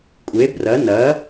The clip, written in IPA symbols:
kʷʼe˧˥brɐ˧˥ nɐ˧˥

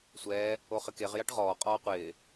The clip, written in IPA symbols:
sʷɛː | oχɪkeʁ jaʈʁɔː qʼɔːqʷɪː

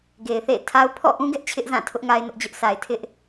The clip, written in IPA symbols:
ɡe˨ɪ̯θḛ˦˨ɪ̯tʰa˦ʊ̯ pʰɔ̰˦˨ʔũ˦ɡɛ˦ʔ t͡ɕʰɪ˦ʔzã˦˨tʰʊ˦ʔ ŋa˦ɪ̯nʊ˦ʔd͡ʑʊ˦ʔsa˨ɪ̯ tʰɪ˦ʔ

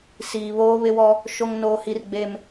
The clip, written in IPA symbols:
siː˨ βoː˦βɪ˦wɔ˦ | ʃo˦ŋnoː˦hi˦r ɡ͡be˦m

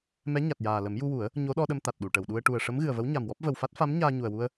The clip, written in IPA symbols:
mɛ˧˥ ɲa˨˩t̚jaː˨˩lə˨˩˦m ju˧wu˨˩˦ə̯ | ɲo˧˥ɗɔ˧ɗə˧m t̪a˨˩t̚ɗu˨˩˨ʈə˨˩˨wɗu˧ə̯ ʈu˨˩ə̯ʂə˧˥mɣɨ˨˩ə̯və˧˥w ɲa˨˩mwɔ˦˥p̚ və˨˩wfa˦˥t̚ fa˧˥m ɲaː˧ɲu˨˩ə̯wu˧ə̯

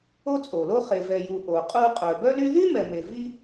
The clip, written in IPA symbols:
o˥t͡sʼo˩lo˥ χe˩vɛ˩ju˩ ʔo˩qʼu˥ qʼœ˩bœ˥ly˥ ðy˥mɛ˩me˩ vi˥

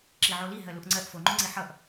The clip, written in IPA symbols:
ǁiʕoli ɦɜluʔŋ͡ǀɜʔ foŋ͡ǃoŋ͡ǀi ħʌʔ

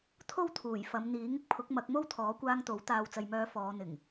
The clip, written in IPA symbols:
t̪ʰo˥wt̪ʰuː˨˩jfɐ˨˧m n̪iː˨˥ŋɪ˥k̚pʰʊ˨˥k̚ mɐ˨˥k̚mo˥w t̪ʰɔː˨˥kʷaː˧ŋ t̪o˨˥w t̪aː˨wt͡sɐ˨jmœː˨˧ fɔː˨˧n̪ɪ˨˩ŋ

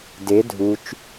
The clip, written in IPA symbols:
de dʱut͡ʃ

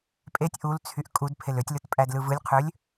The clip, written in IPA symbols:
pʼetʲ ʔult͡sʰyʔ kʼudpʰel øtʲlɯtpʼædlɯ vɯlʲqʰølʲ

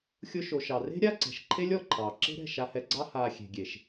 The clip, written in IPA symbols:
xʲʊ˧ʃo˨ʃɑ˨re̤˦ ɾʲa˦ǀɛ̤˨ʃǃʰe˦lʲ ɔ˧ǃʰɑː˨ ǁe̤˦ɾɛ̤˦˨ ʃa˧hɛ˧ɡ͡ǀɑ˦ haː˧ xʲe̤˨ɡʲe˨ʃ

